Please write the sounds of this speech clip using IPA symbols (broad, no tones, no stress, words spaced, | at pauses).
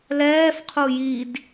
lɛːfqʰu jid